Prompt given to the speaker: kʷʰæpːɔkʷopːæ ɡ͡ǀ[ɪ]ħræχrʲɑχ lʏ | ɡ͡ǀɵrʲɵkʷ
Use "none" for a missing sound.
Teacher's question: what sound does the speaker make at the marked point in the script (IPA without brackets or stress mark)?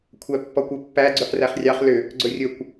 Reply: ʏ